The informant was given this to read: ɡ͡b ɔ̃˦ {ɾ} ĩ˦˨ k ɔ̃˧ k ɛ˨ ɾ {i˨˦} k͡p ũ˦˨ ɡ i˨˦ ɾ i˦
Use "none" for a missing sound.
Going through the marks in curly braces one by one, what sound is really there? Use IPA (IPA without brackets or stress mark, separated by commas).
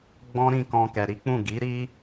ɾ, i˨˦